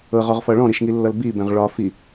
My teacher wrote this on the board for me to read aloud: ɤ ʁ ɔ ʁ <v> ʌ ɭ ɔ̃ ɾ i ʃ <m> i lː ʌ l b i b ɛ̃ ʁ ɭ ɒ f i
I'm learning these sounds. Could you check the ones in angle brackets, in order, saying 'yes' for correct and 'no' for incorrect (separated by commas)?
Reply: no, no